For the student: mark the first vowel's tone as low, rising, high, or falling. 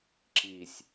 low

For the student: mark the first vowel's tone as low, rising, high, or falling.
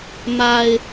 low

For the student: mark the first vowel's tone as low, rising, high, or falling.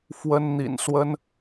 high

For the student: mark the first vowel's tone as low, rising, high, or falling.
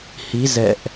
rising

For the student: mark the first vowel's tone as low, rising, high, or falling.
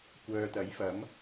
low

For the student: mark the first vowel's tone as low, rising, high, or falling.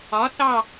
rising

